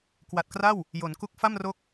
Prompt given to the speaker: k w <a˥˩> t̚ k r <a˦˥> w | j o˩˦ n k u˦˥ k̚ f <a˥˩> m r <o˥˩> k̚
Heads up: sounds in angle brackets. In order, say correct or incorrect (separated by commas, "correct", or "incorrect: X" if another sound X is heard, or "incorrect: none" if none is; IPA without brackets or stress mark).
incorrect: a˨˩, incorrect: a˥˩, correct, incorrect: o˦˥